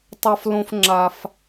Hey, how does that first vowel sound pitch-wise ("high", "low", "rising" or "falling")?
high